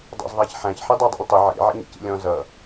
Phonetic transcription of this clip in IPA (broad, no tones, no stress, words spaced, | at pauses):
dˤɑ̰zðˤæçħæ̃ç ħidˤɛdˤɛ̰lʲtˤɪ ʕḭ ʕɛ̰ɲḭcḭlʲɔ̃ zʌ